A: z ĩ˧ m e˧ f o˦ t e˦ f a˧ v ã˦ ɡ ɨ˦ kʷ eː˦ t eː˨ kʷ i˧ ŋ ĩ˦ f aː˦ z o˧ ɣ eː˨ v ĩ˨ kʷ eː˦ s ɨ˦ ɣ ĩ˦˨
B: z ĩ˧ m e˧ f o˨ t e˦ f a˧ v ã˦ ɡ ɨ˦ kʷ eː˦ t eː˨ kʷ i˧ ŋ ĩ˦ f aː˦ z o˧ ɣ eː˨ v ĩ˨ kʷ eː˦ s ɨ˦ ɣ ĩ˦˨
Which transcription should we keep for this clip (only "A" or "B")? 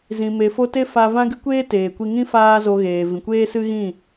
A